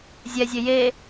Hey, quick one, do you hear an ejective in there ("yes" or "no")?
no